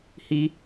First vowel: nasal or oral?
oral